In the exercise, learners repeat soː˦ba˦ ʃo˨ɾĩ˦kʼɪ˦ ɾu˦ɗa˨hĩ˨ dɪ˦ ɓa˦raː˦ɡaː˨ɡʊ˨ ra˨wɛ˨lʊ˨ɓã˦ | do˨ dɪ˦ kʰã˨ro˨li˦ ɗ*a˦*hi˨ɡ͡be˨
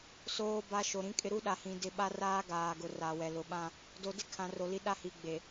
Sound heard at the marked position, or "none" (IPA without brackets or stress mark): a˦